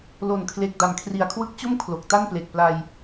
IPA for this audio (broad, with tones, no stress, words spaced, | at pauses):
lo˨˩nkʰle˨˩k̚ da˩˦mkʰri˨˩a̯kʰwɯ˦˥k̚t͡ɕo˥˩m kʰlo˨˩k̚ta˥˩nple˨˩k̚pla˧j